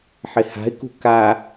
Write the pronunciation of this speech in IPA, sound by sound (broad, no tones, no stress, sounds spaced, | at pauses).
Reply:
ħ ɪ h a̤ ɪ̯ k ṳ k a